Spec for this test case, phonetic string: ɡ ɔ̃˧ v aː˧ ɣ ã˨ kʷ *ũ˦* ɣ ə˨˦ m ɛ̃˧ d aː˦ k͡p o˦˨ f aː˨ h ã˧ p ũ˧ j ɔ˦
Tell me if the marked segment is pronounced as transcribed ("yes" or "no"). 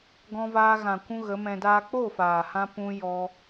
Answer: no